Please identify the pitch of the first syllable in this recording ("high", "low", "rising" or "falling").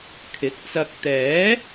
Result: rising